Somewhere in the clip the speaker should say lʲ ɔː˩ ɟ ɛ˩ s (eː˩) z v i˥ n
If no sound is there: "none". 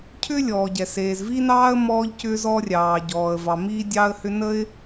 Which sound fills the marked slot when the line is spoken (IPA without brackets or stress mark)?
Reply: eː˩